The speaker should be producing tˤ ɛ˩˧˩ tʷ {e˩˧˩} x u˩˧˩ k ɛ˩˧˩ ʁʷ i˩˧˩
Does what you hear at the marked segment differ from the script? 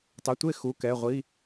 yes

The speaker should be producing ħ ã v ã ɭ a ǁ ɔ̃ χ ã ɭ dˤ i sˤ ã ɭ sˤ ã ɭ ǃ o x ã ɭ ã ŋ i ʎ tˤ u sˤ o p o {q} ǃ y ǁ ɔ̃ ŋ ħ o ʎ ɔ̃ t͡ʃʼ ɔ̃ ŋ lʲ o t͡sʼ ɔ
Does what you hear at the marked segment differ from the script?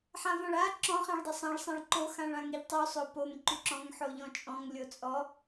yes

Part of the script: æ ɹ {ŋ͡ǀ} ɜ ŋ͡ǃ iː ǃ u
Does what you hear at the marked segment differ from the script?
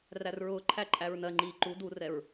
yes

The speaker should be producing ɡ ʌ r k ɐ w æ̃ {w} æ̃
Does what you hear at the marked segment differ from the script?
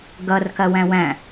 no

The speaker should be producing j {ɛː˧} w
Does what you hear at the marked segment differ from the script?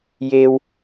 yes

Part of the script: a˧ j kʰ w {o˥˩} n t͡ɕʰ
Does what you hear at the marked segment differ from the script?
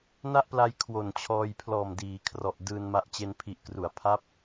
yes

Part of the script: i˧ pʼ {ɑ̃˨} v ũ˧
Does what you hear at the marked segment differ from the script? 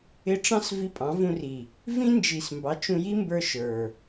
yes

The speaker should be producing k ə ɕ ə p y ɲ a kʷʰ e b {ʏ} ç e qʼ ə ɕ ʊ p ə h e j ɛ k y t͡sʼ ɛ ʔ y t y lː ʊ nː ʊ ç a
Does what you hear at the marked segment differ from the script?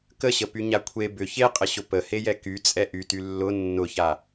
no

